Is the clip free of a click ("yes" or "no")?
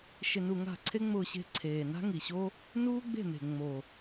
no